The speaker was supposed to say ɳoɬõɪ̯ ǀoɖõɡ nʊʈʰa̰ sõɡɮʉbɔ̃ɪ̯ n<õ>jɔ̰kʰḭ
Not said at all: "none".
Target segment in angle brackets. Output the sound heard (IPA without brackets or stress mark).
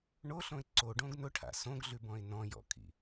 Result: ɔ̃